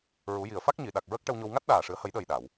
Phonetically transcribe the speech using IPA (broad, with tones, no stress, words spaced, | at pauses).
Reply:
ɹu˨˩˦ji˨˩ə̯fa˦˥k̚ ɲi˨˩˨ɗa˨˩k̚ɹə˦˥k̚ ʈə˧wɲo˧w ŋa˦˥t̚ɗaː˨˩ʂɨ˨˩˦ə̯ hə˨˩˦jɗəː˨˩j ɗa˨˩˨w